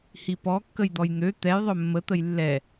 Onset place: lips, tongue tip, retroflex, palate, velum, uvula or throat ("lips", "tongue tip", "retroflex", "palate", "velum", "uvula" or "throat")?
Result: throat